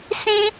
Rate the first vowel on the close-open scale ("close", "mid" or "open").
close